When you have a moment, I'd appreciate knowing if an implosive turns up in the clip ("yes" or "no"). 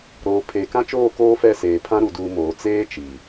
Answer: no